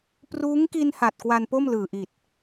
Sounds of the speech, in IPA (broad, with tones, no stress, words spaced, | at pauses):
pruː˦˥ŋki˧n ha˨˩t̚kwa˧npo˥˩m lɯː˨˩ʔi˨˩t̚